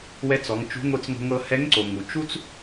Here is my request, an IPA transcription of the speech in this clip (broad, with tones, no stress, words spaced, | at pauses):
wɛ˧˥t͡sɔ˩˧ŋt͡ʃṳ˧˥ ŋʷɯ˧t͡sŋo̤˧ ŋɤ˧hɛ˧˥ŋǀo˩ ŋu˩t͡ʃu˥t͡s